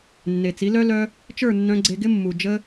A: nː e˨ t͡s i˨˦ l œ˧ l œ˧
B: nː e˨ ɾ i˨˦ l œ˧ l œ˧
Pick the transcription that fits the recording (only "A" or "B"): A